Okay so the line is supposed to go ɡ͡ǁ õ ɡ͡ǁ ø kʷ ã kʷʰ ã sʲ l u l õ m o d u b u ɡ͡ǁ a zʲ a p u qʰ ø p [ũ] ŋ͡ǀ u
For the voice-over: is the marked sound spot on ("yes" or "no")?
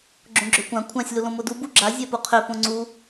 no